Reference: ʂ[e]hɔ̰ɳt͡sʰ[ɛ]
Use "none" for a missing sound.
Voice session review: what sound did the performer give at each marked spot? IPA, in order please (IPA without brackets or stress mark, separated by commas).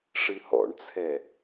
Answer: ɨ, ɛ